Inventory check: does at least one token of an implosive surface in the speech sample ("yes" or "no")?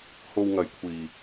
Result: no